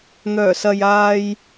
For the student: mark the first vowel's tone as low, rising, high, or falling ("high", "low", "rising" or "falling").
low